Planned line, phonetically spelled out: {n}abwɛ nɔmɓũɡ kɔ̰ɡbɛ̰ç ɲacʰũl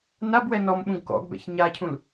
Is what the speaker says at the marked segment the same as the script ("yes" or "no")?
yes